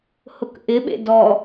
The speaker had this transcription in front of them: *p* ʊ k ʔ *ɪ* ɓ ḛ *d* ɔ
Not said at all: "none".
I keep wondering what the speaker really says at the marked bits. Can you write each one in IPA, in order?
h, ɪ, d

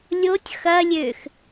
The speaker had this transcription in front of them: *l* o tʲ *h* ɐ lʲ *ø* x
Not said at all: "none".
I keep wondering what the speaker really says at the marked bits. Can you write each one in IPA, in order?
lʲ, x, ø

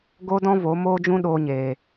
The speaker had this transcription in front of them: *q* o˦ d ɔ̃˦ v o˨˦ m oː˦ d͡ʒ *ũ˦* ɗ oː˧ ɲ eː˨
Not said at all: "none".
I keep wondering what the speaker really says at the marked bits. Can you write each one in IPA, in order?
ɡ, ũ˦

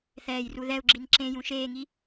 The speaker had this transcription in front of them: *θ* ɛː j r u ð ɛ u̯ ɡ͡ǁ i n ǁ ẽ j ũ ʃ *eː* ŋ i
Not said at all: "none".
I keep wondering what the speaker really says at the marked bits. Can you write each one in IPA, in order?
θ, eː

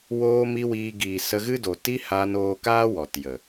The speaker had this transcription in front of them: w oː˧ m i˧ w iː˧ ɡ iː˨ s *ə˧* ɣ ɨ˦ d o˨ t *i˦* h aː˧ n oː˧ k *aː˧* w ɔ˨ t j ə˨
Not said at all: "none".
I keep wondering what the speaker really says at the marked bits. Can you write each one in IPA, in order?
ə˧, i˦, aː˦

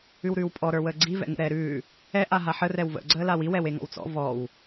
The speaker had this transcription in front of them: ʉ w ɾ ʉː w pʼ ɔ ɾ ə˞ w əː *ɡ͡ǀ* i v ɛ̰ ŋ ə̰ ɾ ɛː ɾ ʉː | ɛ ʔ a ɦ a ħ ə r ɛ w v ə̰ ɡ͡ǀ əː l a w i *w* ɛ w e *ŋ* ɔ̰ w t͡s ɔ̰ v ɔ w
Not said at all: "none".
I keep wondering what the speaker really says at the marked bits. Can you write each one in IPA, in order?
ɡ͡ǀ, w, ŋ

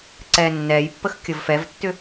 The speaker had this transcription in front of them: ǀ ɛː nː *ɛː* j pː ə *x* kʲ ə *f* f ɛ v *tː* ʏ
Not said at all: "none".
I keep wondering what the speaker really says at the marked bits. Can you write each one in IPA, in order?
ɛː, x, v, tː

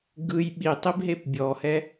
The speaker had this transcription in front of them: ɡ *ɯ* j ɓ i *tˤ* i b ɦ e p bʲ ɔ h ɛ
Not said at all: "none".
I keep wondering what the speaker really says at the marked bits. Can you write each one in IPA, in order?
ɯ, tˤ

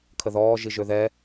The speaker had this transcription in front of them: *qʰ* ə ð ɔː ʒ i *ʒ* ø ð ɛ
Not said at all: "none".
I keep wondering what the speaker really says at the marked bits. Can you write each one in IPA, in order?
kʰ, ʒ

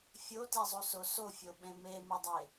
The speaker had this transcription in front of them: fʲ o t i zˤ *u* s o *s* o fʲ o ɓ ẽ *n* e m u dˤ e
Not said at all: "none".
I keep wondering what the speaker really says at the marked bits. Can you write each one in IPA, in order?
u, s, m

